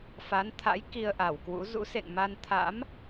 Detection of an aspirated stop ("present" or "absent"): present